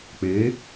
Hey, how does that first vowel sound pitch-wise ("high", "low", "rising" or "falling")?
rising